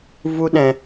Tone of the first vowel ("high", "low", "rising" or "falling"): high